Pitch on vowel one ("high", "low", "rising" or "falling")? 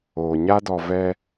low